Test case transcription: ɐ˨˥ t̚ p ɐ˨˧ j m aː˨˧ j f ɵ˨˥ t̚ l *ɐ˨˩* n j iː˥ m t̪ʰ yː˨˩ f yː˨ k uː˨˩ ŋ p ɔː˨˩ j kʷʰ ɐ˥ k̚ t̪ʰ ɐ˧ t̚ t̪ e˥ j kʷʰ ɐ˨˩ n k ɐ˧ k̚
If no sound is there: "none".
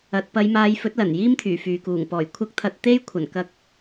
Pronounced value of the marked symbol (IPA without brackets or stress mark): ɐ˨˩